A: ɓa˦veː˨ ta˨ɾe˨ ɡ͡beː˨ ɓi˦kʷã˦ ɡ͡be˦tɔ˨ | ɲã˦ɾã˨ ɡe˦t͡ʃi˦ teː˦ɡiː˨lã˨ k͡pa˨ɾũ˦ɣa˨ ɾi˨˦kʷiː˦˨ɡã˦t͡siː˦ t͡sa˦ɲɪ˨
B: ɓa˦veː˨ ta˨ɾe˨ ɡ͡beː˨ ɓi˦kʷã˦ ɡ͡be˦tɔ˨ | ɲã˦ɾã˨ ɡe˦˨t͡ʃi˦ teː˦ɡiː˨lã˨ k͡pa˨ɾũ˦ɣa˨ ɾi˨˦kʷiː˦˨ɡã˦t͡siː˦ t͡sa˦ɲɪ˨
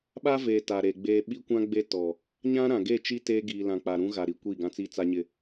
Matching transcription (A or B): B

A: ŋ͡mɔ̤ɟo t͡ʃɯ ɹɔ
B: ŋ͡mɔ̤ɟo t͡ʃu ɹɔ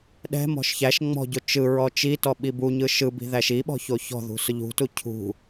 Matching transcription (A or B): A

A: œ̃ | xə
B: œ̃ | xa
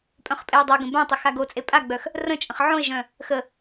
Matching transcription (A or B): A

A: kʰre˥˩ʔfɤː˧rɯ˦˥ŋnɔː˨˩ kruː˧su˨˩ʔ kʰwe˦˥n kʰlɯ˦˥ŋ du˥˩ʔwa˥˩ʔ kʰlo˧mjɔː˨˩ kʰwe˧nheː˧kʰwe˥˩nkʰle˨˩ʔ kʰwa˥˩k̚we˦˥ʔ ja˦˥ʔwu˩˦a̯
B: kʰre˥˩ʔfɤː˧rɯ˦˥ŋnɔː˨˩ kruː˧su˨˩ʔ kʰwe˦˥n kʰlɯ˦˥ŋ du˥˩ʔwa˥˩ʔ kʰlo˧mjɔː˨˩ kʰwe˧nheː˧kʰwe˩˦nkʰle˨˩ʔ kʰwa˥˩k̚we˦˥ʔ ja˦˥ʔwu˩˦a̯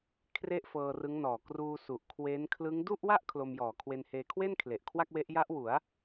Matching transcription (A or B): A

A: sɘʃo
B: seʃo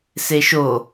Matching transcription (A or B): B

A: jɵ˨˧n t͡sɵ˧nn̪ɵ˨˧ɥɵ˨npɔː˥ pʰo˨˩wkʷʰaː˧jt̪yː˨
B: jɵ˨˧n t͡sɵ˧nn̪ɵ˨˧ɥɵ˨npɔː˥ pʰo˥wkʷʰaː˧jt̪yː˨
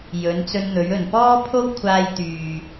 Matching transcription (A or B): B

